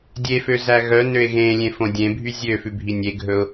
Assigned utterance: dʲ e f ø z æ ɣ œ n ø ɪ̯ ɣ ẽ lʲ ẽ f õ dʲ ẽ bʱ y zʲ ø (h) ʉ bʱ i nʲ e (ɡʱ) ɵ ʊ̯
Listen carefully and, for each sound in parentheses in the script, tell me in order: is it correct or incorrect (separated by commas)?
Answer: incorrect, correct